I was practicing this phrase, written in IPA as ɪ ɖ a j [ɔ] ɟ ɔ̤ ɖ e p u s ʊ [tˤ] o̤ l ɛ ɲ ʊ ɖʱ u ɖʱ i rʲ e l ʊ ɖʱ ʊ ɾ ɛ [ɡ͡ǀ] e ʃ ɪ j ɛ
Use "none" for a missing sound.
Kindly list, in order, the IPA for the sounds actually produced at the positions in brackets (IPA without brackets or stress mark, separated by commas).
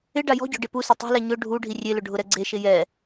ɔ̤, tˤ, ɡ͡ǀ